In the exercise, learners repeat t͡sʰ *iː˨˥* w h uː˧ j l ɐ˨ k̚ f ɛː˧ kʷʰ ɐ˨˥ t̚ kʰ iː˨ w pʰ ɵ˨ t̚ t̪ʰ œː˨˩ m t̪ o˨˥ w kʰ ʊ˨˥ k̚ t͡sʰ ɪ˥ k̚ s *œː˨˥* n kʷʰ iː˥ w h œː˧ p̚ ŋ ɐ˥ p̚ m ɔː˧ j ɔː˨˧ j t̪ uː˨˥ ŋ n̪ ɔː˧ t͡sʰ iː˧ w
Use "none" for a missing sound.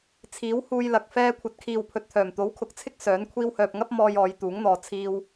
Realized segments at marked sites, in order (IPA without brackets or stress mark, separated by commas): iː˨˥, œː˨˥